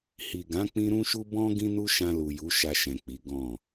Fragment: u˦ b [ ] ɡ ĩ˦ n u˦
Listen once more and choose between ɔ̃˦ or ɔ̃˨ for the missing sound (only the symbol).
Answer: ɔ̃˦